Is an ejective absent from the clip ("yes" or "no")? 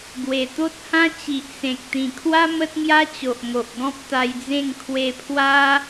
yes